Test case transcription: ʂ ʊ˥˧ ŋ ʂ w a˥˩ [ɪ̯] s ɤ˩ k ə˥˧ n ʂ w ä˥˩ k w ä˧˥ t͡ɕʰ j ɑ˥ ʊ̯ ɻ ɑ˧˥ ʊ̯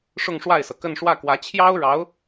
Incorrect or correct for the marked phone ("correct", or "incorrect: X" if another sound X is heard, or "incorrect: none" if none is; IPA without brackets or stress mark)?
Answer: correct